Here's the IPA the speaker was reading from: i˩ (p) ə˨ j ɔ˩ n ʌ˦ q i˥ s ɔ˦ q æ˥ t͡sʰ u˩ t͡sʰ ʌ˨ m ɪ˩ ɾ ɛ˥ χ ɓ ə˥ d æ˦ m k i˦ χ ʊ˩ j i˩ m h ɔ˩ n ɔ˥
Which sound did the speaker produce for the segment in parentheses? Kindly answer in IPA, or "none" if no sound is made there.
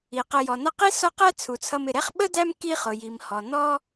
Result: q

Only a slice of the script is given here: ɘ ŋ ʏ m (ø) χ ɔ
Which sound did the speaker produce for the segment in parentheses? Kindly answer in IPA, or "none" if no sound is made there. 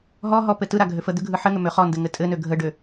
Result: ø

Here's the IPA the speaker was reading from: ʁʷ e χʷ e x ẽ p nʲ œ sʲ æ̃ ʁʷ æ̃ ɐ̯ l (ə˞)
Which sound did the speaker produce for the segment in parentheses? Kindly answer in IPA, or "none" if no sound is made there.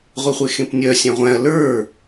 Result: ə˞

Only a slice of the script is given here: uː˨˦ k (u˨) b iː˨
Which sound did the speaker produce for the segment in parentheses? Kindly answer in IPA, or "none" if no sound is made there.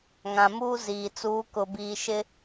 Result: ʊ˨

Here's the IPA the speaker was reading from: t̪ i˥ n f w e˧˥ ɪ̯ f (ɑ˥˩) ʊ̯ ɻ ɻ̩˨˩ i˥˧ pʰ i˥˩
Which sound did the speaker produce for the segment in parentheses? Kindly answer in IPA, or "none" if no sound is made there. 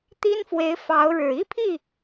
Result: ɑ˧˥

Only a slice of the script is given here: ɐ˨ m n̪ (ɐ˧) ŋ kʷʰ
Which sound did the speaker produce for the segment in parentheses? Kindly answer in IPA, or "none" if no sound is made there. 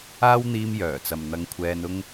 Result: ɐ˧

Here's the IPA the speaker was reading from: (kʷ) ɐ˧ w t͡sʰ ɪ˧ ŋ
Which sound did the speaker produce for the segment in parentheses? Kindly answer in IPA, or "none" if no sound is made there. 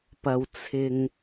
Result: p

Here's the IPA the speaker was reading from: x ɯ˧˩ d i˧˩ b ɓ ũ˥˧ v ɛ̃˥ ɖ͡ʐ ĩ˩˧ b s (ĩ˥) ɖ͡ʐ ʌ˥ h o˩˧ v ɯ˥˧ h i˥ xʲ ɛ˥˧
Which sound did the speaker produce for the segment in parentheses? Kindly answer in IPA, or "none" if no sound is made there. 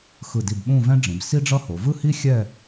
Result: i˥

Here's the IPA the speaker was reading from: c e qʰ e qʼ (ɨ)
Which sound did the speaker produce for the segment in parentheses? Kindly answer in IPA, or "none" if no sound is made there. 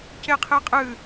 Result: ɨ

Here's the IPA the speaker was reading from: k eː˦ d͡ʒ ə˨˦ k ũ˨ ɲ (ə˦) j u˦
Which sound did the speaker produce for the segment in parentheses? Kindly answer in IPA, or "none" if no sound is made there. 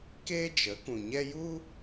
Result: ɛ˦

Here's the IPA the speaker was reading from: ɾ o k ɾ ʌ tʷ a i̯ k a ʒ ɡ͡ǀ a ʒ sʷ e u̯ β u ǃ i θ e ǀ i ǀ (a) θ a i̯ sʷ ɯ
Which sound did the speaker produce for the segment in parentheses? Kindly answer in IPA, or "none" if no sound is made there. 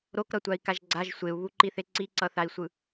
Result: ʌ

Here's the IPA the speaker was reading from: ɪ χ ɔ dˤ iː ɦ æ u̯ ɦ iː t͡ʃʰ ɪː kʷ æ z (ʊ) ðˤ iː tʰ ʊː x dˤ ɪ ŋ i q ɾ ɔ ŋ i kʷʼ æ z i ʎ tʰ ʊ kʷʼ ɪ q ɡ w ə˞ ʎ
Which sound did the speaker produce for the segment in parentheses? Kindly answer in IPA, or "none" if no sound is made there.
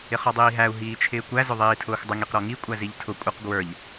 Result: ʊ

